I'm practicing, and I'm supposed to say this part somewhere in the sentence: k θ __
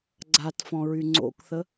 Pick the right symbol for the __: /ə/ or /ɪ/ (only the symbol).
ə